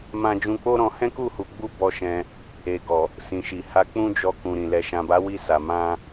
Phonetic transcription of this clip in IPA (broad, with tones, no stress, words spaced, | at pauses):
mã˦ d͡ʒũ˧k͡po˦ɾɔ̃˧ hɛ̃˦ku˦˨ hu˧ɡ͡bu˦bɔ˧ ʃɛ̃˧ | e˨ɡɔ˨ | sĩ˨ʃi˨ ha˧k͡pũ˦d͡ʒɔ˧ kũ˨ɾĩ˨ lɛ˨ʃã˨ba˨˦wi˧ sa˨ mã˧